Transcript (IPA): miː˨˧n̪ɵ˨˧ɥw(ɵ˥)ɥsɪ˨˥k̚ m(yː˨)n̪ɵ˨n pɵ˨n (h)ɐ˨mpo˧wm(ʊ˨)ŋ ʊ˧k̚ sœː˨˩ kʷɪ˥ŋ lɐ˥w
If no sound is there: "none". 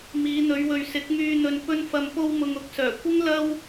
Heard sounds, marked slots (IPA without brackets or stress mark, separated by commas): ɵ˨, yː˧, f, ʊ˨